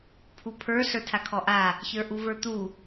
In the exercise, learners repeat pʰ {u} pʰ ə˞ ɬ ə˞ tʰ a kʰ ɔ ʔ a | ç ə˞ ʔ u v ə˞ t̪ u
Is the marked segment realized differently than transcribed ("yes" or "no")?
no